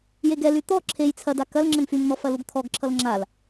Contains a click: yes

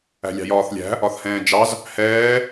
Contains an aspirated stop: no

